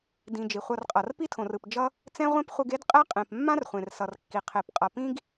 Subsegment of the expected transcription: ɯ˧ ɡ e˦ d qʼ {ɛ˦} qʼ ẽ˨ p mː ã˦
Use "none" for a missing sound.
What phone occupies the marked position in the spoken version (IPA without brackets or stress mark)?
ɛ˦